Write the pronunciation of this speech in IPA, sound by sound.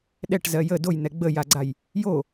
ɗɛʈzɜ jə dojn̪ɛ ɡ͡bəjaɡ͡ǀaj | jo

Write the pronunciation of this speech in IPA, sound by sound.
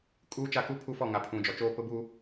kʼuː˦t͡ʃa˦˨ku˦ pʰu˦fɔ˦˨ ŋa˨pʰũ˨d͡ʒɔ˨t͡ʃoː˦ pʊ˦buː˦

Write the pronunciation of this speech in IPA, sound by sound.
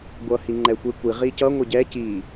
ɡʷʌ hiŋ͡ǃɛxʷekʷi ʁicʌ ŋʷeɟɛ ci

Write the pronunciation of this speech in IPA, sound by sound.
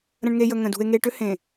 ɾə̃˨ɳŋe˨jə˨ ŋə̃˨ dṳ˨e̯ ŋe˨ʈʏ˦ hẽ˨

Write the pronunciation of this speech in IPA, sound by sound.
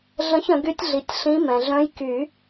ɮə̃˧˥çə̃˨˩˦ɡy˧˥tʲɮi˩˥tʲ ɬĩ˧˥ mɛ̃˩ɮœ̃˧˥j ky˨˩˦

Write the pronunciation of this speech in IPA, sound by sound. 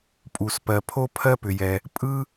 pʼu˩spɜ˩pʰo˥ pʰɜ˥pʏ˩jɛ˩ | pʼɯ˥

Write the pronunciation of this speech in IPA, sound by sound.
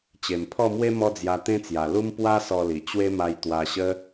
t͡ɕe˨˩mpʰɔ˥˧mwe˦ mɔ˦d͡zja˧t̪ẽ˦t͡sja˨˩ lu˦m pwa˦ sɔ˧li˨˩ t͡ɕwe˦ma˧j t̪wa˧ɕə˦

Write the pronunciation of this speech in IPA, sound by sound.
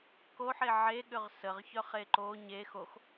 koħe ʕeɠʏʁ səʁçœχe ǃo ɲe xox

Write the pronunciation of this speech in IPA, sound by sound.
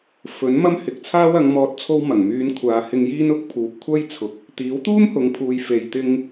fɵ˨˥n mɐ˥mhɪ˨˥k̚t͡sʰaː˥w ɐ˨˧ŋ mɔː˨t̚t͡sʰo˧w mɐ˨˩ŋmyː˨˧n kʷʰaː˨hɪ˧ŋjiː˥n ʊ˥k̚ pʰuː˨˥p̚kʷʰɐ˥jt͡sʰʊ˨k̚ | t̪iː˨˥wt̪uː˥mhʊ˨ŋpʰuː˨j fe˨jt̪ɪ˧ŋ

